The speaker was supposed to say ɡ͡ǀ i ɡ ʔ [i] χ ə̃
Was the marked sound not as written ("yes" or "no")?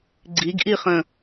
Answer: no